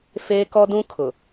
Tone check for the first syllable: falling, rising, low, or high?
high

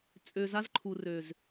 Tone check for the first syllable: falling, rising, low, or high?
low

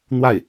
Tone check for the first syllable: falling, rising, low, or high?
falling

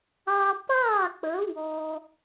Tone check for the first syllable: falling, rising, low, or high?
high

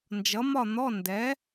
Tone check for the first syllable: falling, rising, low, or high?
rising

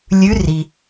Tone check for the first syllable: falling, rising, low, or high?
rising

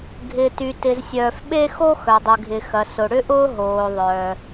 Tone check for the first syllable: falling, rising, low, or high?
low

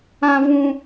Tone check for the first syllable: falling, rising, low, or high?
high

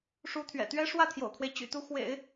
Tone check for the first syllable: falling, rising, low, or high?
rising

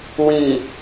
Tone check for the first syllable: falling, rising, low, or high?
low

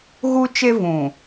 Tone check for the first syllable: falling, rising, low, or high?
high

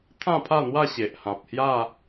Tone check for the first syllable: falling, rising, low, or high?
falling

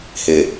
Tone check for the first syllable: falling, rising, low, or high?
low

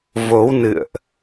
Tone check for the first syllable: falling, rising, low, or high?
rising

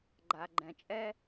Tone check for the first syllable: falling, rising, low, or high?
low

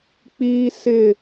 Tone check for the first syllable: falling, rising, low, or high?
high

